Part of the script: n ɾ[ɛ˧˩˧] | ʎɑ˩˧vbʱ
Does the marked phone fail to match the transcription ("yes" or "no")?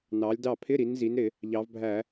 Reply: yes